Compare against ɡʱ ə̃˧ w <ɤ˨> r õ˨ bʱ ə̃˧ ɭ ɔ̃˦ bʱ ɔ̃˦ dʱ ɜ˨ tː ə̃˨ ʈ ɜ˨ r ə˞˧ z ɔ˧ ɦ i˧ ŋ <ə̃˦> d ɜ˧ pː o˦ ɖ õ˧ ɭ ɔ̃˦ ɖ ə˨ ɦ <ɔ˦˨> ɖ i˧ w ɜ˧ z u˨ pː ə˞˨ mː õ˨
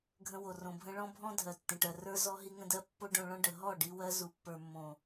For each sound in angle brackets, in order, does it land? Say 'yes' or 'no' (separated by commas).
no, no, yes